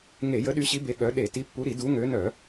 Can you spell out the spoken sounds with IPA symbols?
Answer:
ŋe˧˩˧jə˨˦ɗy˨˦ɕi˨˦ be˨˦ɠœ˨˦ ɗe˧˩˧ ti˨˦pːu˨˦ɾi˧˩˧ du˨˦ŋø˨˦nœ˧˩˧

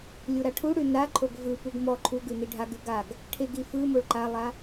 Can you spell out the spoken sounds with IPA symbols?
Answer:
lʲuɾaʈʰuɽʉ naǃʰoɡ vɯpuɡ mɔ ǃʰuɡʉ niɖʱaɡʉ ɡaɡ | ʈʰeɡi fɯ moɭǃalˠa

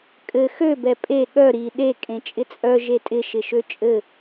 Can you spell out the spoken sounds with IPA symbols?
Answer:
kʼɘ xø bɛpʼe ɠœ ɾi ɗe kʼẽt͡ʃʼɪt͡sʼœ ʒetʼɪ ʃɪʃøt͡ʃʼɘ

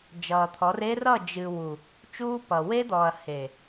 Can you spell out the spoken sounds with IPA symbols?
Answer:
d͡ʒʌː˨t̪ʰɔ˨˦r e˦rʌ˦˨d͡ʒɨ˨ wu˨ | t͡ʃuː˦pʌ˨ we˦d̪ɔː˨ɐ̯ he˨

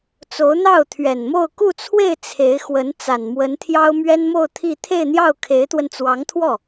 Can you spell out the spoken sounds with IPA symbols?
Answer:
t͡so˧˥ʊ̯n̪ɑ˥˩ʊ̯t̪ʰɥɛ˨˩nmo˥˧ʊ̯ ku˥˧t͡sʰwe˥˩ɪ̯ t͡sʰe˧˥ɪ̯ xwə˧˥n t͡sa˨˩nmwə˧˥nt̪ʰjɑ˥ʊ̯ mɥɛ˥nmo˥˧ʊ̯ t̪ʰi˥˧ t̪ʰe˥˧ɪ̯n̪jɑ˥˩ʊ̯kʰe˧˥ɪ̯t̪wə˧n t͡swɑ˧˥ŋt̪ʰwɔ˥˩

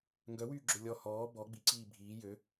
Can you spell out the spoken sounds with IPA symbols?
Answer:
ŋɡœwyːɡ͡ǁø lʲɔ hɔː bɔ ɡ͡biǀiː bʱiː jø

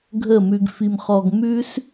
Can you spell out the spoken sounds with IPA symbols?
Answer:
ɡʱə˦˨mʉ˧ɡfi˧mχɔ˧ɡ mʉ˦s

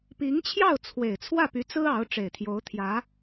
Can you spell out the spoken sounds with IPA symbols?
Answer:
pi˧˥ŋt͡ɕʰjɑ˥˩ʊ̯ t͡sʰwe˨˩ɪ̯t͡sʰwä˥˩py˧˥t͡sɹ̩˥ ɑ˧˥ʊ̯ ʈ͡ʂe˨˩ɪ̯t̪ʰjo˧˥ʊ̯t̪ʰjä˧˥

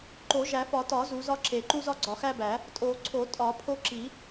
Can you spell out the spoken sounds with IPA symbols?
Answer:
ǃo˨˩˦ʒæ˨˩˦fɒ˨˩˦tɒ˨˩˦ zu˨˩˦zɒ˦ ǁe˨˩˦ǃu˦ zɒ˦ɡ͡ǀɒ˨˩˦xæ˦bæ˨˩˦ | tʼo˨˩˦ǀʰo˨˩˦ tʼɒ˨˩˦pʰo˦ǁi˨˩˦

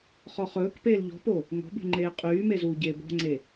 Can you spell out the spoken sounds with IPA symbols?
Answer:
χɔχɵːkpeːl ʎɔ̤po | ŋɔ̤bṳ ŋ͡ǃeːqʼyːme zuːɟeːbɔ̤ŋ͡ǀe

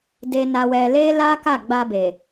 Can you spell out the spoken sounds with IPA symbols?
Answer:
de˧na˧wɛ˧ le˦la˦ ka˦˨ɡ͡ba˧be˨

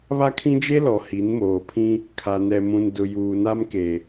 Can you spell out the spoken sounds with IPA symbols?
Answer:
βa˦kʰĩ˦d͡ʒe˦lɔ˨ hi˨˦nmoː˨pʰĩ˦ | kʰa˨nɛ˨mũ˨ndʊ˨ juː˨na˦mke˨

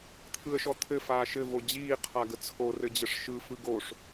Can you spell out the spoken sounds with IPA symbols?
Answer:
t̪ʰɯə̯ʃɔt̪ʰɘ faːʃɘ vod͡ʑiː qʰaɡət͡sʰo rɘd͡ʑəʂʃɯ fɯɡoʂ

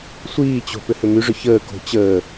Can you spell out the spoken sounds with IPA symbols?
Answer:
sʷiːt͡ɕo̤ pʏhʏmyʐʏ çəː ko̤ t͡ɕəː

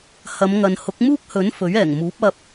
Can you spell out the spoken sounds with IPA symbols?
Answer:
hɐ˨˧mŋɐ˨n hʊ˨˥k̚muː˥k̚hɵ˨˥n fɵ˨˥ɥɛː˨˩ŋmuː˨˥p̚ ɐ˨p̚

